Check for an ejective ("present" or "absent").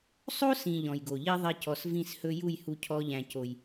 absent